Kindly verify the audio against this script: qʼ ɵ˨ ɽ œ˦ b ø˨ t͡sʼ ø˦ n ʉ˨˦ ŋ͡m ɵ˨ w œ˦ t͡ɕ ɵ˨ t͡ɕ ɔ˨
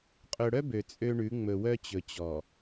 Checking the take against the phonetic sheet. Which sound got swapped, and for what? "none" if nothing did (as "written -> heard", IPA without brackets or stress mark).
n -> ɳ